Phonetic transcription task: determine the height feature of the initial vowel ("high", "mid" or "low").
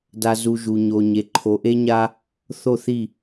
low